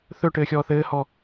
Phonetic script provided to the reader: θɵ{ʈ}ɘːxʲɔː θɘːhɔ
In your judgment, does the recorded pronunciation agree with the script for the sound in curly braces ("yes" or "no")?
yes